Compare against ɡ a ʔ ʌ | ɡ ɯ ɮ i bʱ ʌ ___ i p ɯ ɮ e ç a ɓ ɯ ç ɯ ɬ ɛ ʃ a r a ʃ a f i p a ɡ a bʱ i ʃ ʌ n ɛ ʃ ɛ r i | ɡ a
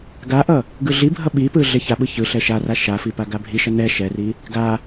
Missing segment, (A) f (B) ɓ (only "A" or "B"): B